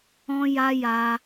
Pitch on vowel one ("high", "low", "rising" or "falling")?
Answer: high